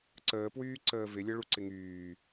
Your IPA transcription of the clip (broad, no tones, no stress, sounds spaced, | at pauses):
ǀ əː p w yː ǀ əː v ɪ lʲ ə ɭ u ǀ ɪ ŋ yː